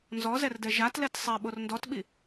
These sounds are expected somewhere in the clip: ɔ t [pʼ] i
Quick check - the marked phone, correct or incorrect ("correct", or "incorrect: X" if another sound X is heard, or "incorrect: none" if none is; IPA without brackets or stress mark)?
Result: incorrect: ɓ